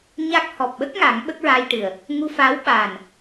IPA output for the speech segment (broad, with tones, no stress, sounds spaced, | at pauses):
ɲ a˦˥ k̚ h ɔ˨˩ p̚ ɓ ə˦˥ k̚ ŋ a˨˩˦ ŋ ɓ ə˦˥ k̚ ɹ a˧ j ʈ ɨ˨˩ ə̯ | ŋ u˧ f aː˧˥ w ɓ aː˨˩ n